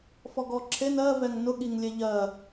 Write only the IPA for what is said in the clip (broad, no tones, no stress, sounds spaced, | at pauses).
f ɔ ɡ ɔ ǁʰ e n ɜ v ɛ ŋ n ʊ ɠ i ŋ lʲ e ʎ ɜ